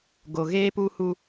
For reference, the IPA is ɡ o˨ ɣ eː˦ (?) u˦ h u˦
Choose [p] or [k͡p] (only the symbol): p